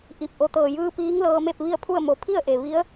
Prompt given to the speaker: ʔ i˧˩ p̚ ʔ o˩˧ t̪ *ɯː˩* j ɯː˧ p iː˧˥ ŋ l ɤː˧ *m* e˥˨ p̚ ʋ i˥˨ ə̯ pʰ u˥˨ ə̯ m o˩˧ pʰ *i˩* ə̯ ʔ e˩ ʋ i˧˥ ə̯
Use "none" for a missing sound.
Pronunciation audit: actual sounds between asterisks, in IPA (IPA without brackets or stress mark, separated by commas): ɤː˩, m, i˥˨